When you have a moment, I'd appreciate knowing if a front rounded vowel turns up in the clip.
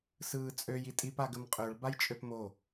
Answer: yes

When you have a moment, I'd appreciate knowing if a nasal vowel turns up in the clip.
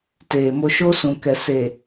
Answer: yes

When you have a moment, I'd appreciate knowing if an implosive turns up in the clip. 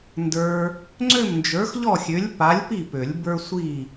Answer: no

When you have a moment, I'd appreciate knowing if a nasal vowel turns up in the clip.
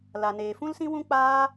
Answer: yes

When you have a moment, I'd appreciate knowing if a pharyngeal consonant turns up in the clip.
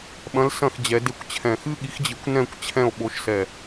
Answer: no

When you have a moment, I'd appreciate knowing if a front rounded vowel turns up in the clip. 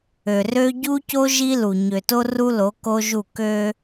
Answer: yes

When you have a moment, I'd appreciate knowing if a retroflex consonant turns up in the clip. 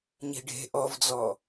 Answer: yes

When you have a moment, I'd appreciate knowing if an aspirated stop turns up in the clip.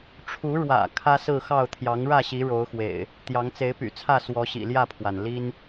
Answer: yes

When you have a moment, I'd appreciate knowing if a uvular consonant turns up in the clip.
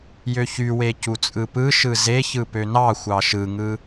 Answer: no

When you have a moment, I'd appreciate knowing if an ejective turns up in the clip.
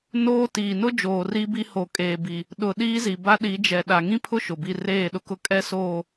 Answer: yes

